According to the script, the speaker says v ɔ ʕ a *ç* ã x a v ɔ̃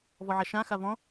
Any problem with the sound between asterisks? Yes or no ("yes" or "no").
yes